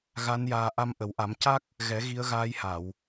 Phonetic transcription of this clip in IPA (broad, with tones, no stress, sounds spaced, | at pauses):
ɣ a˧˥ n j aː˧ ʔ a˧ m ʔ ə˨˩˦ w ʔ a˨˩˦ m c a˦˥ k̚ | ɣ ɛ˨˩˦ ɣ i˧˥ ə̯ ɣ aː˧˥ j h a˨˩˨ w